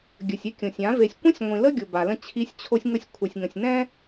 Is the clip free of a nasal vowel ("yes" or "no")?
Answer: no